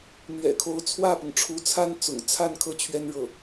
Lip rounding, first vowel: unrounded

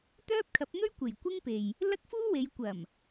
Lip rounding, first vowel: rounded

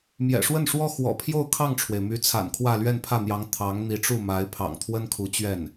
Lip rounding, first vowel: unrounded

